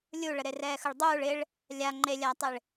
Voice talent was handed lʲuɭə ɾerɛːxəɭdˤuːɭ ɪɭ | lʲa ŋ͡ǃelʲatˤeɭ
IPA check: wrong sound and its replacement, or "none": none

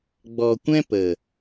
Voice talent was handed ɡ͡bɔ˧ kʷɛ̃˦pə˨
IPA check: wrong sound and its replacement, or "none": none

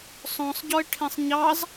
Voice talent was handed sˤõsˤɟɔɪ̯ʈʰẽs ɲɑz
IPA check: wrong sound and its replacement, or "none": s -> sˤ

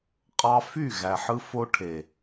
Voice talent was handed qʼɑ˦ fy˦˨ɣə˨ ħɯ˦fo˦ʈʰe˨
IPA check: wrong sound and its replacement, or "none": ə˨ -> æ˨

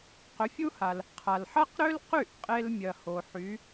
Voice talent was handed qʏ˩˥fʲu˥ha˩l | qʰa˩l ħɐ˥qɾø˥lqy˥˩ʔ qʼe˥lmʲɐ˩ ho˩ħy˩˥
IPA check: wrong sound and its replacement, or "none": none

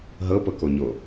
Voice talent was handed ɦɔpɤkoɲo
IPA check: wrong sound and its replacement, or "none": ɔ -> ɤ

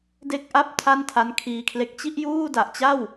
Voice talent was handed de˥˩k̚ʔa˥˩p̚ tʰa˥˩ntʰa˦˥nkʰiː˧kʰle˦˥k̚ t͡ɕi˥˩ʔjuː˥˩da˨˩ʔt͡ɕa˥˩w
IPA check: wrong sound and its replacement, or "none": none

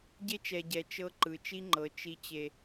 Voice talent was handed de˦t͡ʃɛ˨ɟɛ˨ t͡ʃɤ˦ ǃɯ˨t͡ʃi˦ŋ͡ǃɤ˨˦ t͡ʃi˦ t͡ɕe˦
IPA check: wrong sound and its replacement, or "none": d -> ɟ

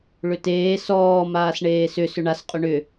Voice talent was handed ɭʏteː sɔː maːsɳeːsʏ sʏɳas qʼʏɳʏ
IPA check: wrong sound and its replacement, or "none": none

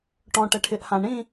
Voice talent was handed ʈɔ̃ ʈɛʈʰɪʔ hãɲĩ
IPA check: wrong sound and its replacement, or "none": ɲ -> ɳ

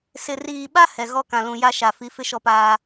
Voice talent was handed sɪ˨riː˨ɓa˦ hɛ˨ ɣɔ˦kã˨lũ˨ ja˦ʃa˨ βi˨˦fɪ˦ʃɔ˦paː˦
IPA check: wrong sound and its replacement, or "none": β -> f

